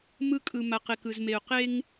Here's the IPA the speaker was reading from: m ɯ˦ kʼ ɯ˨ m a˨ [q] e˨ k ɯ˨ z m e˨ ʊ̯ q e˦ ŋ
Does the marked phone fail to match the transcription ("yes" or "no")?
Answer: no